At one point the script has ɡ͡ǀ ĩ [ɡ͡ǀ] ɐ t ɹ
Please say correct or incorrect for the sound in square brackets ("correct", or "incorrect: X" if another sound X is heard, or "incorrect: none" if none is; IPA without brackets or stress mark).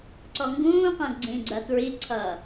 correct